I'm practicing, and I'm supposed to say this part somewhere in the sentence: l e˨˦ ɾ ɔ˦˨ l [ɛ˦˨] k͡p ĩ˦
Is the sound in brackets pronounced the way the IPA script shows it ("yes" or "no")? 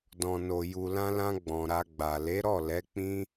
no